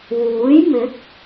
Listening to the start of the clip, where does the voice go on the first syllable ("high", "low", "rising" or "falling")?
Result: rising